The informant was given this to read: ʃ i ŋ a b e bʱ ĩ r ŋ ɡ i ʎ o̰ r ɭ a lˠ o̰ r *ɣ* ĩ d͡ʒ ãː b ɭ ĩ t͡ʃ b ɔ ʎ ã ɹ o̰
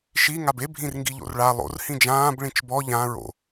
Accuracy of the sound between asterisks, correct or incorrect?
incorrect